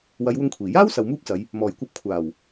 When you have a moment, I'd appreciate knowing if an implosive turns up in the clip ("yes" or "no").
no